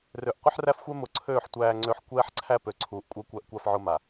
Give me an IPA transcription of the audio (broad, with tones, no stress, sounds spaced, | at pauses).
r ø˨ ʔ qʷ ɪ˦ ħ r æ˦ f xʷ ɛ˦ m ʊ˨ ǀʰ øː˦˨ ħ tʷ æː˦ ŋ͡ǀ ø˦ ħ kʷ ɛː˦ ħ ǀʰ æ˦ p ø˨ ǀʰ uː˨ ʔ kʷʼ ɛ˦ kʷ æ˦ ʔ kʷ a˦ f ʕ ʊ˦ m a˨